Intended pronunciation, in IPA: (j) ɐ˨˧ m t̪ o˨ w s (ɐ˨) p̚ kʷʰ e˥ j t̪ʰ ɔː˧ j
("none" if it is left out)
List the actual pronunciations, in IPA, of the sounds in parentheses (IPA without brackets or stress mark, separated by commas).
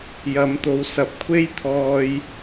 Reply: j, ɐ˨